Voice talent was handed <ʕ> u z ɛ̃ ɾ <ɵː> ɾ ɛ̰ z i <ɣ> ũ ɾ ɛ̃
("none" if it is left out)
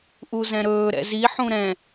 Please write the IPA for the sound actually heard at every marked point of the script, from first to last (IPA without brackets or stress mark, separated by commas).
ʔ, ɵː, ħ